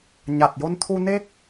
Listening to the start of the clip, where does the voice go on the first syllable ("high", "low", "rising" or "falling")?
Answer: low